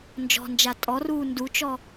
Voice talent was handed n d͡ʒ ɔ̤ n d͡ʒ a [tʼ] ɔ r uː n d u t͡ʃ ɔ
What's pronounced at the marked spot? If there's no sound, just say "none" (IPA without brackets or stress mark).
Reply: tʼ